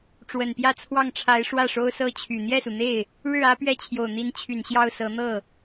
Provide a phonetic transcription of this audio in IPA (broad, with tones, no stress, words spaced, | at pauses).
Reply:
ʈ͡ʂwə˨˩npjä˥˧t͡sʰwɑ˥˩ŋʈ͡ʂʰa˧˥ɪ̯ ʂwä˥˩ʂo˥ʊ̯sɤ˥t͡ɕʰy˨˩ n̪jɛ˥˩su˩n̪e˥˩ɪ̯ | ɻɻ̩˥˩ ä˥pɥɛ˥˩t͡ɕʰjo˨˩ʊ̯n̪i˧˥n t͡ɕʰy˨˩nɕjɑ˥˩ʊ̯sɤ˧˥ n̪ɤ˥˩